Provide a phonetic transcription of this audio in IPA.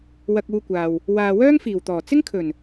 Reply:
w ɐ˧ k̚ uː˧ kʷ aː˨ w | w aː˨ w œː˥ ŋ f iː˨˩ w t̪ ɔː˨˩ t͡s ɪ˥ ŋ kʰ ɵ˨˩ n

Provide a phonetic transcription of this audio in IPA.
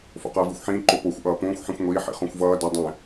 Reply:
f o̰ q ʌː v i xʷ ħ ĩː ǃ o p o xʷ ʔ ʌː p õː xʷ ħ ĩ xʷ ŋʷ iː ħ ḭ χ õ xʷ v ʌː d ʌ dˤ ɛ̃

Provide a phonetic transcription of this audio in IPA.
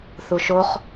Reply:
θ u ʃ o χ

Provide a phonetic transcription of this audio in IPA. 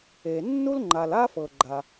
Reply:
e˩ nː u˥ l ŋ͡ǃ a˩ l a˥ f ɤ˩ ɡ͡ǃ a˩

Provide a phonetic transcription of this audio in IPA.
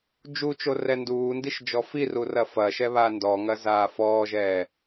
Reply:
d͡ʒ u t͡ʃ o r ɛ n d uː n d i ʃ d͡ʒ ɔ f i r u r ɐ f ɐ ʃ ɛ β a n d ɔ ŋ ɐ z aː f ɔː ʒ ɛː

